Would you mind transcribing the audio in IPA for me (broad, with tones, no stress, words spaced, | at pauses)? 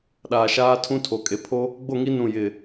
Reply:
ɗaː˨ʃaː˦ tʰũ˦tʰo˨kʼe˨ pʰo˦ | ɡ͡bo˦˨ŋi˦ nũ˦˨ jɪ˨